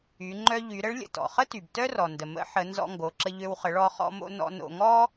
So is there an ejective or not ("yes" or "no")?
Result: no